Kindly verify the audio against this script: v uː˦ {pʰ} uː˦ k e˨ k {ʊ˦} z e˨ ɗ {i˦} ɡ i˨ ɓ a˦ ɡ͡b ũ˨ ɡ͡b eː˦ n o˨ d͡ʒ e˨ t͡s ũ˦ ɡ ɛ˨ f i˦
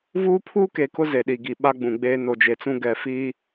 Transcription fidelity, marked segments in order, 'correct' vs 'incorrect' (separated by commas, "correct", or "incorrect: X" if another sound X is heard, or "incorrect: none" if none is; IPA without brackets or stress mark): correct, correct, incorrect: i˨